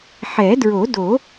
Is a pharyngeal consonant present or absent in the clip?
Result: present